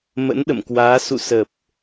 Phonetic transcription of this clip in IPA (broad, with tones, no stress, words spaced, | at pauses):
mə̰˧˥nɗə̰˧˨mkwaː˨˦ sṵ˧˨sə˨˩p̚